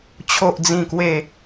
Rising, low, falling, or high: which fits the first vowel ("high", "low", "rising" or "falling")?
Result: low